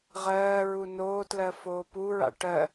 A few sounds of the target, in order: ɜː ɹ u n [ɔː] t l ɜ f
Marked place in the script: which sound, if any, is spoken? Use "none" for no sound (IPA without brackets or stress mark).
oː